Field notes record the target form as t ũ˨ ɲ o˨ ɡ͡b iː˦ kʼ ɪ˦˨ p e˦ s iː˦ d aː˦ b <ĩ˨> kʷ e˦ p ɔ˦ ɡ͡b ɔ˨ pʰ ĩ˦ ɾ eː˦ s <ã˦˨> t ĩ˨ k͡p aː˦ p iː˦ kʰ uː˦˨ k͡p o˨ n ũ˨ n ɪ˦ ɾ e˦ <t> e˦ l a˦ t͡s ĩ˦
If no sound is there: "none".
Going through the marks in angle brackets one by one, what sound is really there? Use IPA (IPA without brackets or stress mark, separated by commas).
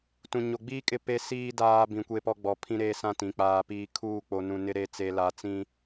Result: ĩ˨, ã˦˨, t͡s